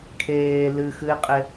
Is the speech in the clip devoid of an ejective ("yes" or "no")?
no